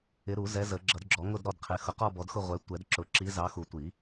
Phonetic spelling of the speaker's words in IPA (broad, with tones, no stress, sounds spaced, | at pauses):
ɪ˨˦ ɾ u˨˩˦ z ɛ˨˦ z ə˨˩˦ ɡ͡ǁ ʌ˨˩˦ d ɡ͡ǁ ɔ˨˩˦ ŋ ʊ˦˨ d ɾ ɔ˦˨ d qʰ ɪ˨˦ x ʊ˨˩˦ q ɔ˦˨ b ɔ˨˦ d x ʊ˦˨ ʁʷ ɛ˨˦ tʷ ɛ˨˩˦ d ǁ ʊ˨˩˦ ǁ i˨˦ z ɑ˨˦ x u˨˩˦ tʷ i˨˩˦